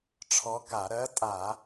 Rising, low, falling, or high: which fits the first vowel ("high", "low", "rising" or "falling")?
rising